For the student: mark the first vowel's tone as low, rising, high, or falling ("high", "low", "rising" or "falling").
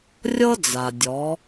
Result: high